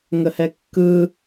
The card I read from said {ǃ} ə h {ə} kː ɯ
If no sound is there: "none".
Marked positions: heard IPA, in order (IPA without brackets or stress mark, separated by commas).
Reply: ŋ, ɛ